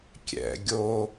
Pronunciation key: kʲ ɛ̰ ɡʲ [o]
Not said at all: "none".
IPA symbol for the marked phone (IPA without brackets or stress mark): o